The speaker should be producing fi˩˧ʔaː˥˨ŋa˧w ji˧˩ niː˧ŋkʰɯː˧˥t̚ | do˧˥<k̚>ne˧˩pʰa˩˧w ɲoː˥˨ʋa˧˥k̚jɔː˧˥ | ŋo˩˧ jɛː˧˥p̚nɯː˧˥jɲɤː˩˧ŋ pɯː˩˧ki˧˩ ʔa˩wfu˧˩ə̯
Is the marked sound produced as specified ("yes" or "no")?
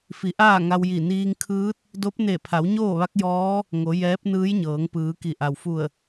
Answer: no